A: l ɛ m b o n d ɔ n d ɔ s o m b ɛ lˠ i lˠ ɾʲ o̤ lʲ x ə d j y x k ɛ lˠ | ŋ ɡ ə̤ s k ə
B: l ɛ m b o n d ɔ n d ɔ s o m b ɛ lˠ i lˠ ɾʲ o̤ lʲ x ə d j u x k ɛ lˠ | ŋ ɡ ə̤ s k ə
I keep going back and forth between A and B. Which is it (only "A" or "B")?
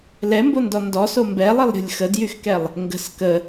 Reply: A